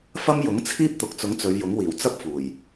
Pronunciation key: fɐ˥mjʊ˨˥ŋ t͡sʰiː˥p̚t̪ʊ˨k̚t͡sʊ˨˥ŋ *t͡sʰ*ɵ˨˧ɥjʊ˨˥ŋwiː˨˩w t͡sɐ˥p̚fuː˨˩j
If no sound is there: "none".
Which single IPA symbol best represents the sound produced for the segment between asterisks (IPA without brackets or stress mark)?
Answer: t͡s